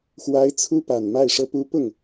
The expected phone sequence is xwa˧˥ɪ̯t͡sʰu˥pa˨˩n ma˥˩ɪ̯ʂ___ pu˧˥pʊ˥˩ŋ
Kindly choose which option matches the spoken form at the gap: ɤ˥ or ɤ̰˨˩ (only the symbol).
ɤ˥